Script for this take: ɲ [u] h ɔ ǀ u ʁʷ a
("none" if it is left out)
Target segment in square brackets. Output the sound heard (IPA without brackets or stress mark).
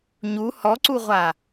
u